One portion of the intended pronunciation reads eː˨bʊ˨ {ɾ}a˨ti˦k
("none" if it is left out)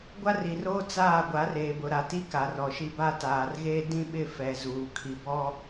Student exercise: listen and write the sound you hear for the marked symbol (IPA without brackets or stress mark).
ɾ